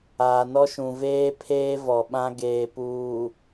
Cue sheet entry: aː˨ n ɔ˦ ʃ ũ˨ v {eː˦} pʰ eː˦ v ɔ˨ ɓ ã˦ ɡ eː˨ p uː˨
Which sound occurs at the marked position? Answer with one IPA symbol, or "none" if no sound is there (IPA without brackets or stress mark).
eː˦